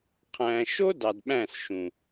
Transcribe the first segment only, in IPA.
qʰ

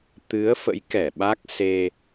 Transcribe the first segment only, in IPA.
t̪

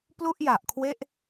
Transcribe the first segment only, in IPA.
p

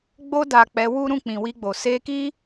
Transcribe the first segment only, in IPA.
ɡ͡b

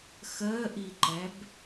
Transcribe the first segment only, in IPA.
x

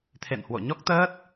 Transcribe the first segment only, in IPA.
t̪ʰ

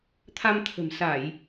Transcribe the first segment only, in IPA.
t̪ʰ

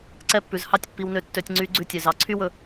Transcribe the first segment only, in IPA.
ǀ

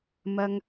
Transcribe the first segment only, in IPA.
m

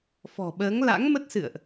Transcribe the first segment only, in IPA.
f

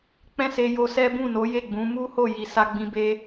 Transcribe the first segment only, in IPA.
k͡p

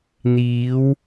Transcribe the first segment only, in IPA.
n̪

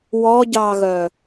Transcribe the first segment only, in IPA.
w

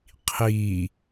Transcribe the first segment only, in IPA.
qʰ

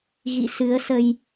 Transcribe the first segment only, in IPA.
ɣ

